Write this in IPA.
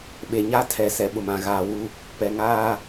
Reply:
ɓ e˨ ɲ a˦ tʰ ɛ˨ s ɛ˨ ɓ ʊ˨ m ã˨ ɣ aː˨ w u˦ | p ɛ˨ ŋ aː˦

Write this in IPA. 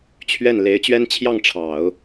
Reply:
t͡ɕʰ ɥ ɛ˥˩ n l e˧˥ ɪ̯ t͡ɕ ɥ ɛ˥ n t͡ɕʰ j ɑ˥˩ ŋ ʈ͡ʂʰ ɑ˨˩˦ ʊ̯

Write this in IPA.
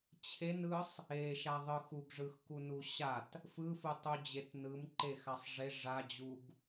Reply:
t͡ɕʰ e n ɯ sˤ | e ʃ a ðˤ ɯ x u ɡ ʐ ɯ x k u n u ɕ a t | f ɯ f ɯ tˤ u d͡ʑ e t n ɯ m ǃ e x a sˤ ʐ e ʐ a d͡ʑ u ɡ

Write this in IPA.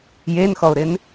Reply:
j e n x ɔ ʊ̯ ɾ ɪ n

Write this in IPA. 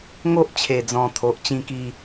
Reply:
ŋ o˦ ʔ t͡ɕʰ e˨˩ d͡z ɔ̃˨˩ t̪ʰ o˨ ʔ t͡ɕ ĩ˥˧ k i˥˧

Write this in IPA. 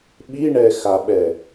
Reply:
ɓ i ɳ ɛ x a ɓ ɛ

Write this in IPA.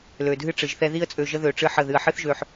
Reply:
l ø˨ dʱ ɨ˦ ʈ͡ʂ ɨ˨ ʒ θ ɛ˦ ð i˦ ə̯ t͡sʼ ø˧ ʒ ə˦ ð ø˧ ʈ͡ʂ ɨ˦ ħ ə˦˨ ð ɨ˧ ə̯ ħ ɨ˦ θ ʒ ø˧ ħ

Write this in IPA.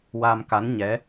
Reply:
w a˧ m k a˧˥ n ɲ ɛ˧˥

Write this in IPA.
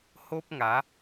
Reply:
h o˦ p̚ ŋ a˨˦

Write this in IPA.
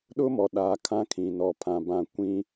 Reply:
ɗ ʊ˦ m ɔ˨ ɗ a˨˦ kʰ ã˦ kʰ ĩ˨ n ɔ˨ pʰ ã˨ b ã˦˨ kʷ ĩ˦

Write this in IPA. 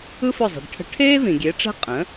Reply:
ɯ˥ f ɵ˥˩ zˤ i̤˩ ɖ ʈʰ ə̤˧ ʈʰ eː˥ v ĩ˩ ɡʲ e˩˥ ʈ͡ʂ ɛ̤˥ qʼ ə̃ː˩˥

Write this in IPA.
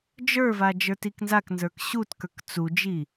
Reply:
d͡ʒ ə˞ v a d͡ʒ ə˞ t i k n z a k n z ə˞ k ɕ u t k ə˞ k t͡s u d͡ʒ i

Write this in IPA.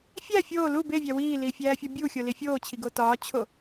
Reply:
fʲ æ fʲ oː l u b e vʲ æ w iː l iː fʲ æː fʲ ɒ bʲ u xʲ o l i fʲ oː t͡ɕʰ i ɡ o t ɒː t͡ɕʰ o

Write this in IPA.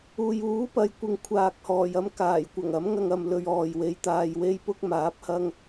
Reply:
uː˨ j uː˨˥ p ɐ˨ j kʷ ɪ˨ ŋ kʷʰ aː˨ k̚ h ɔː˨˩ j ɐ˥ m k aː˨˩ j kʷ ɐ˨˩ ŋ ɐ˨˥ m ŋ ɐ˧ ŋ ɐ˧ m l ɵ˧ ɥ ɔː˨ j w e˧ j t̪ aː˧ j w e˥ j p ʊ˥ k̚ m aː˨˥ p̚ h ɐ˥ ŋ

